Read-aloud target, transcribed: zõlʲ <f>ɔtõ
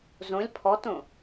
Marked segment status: incorrect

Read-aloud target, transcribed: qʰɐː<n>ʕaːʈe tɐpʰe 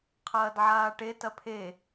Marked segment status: incorrect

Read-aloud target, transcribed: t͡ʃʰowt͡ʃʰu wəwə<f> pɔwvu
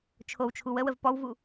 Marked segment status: incorrect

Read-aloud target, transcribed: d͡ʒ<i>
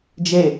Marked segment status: incorrect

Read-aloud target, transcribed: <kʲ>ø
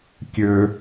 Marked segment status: correct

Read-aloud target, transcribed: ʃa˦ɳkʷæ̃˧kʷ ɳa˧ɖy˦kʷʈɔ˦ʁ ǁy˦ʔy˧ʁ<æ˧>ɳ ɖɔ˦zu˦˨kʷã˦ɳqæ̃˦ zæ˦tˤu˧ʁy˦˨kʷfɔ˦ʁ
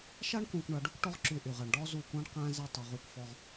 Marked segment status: correct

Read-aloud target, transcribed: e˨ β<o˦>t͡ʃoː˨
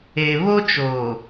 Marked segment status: correct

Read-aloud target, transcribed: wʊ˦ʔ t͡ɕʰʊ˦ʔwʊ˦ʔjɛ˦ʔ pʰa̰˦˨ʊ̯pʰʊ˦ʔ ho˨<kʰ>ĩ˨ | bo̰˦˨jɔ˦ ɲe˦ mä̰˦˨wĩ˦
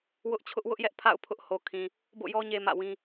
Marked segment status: correct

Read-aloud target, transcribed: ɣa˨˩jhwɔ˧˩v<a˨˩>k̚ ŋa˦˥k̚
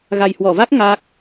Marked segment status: incorrect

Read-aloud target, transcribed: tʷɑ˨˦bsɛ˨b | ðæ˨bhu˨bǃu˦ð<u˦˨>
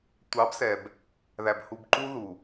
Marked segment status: incorrect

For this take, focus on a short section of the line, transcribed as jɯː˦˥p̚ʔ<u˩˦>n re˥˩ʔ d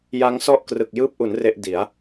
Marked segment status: correct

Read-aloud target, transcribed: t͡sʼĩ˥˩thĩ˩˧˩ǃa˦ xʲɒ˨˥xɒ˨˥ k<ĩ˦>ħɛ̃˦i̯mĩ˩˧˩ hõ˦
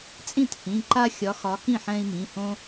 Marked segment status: incorrect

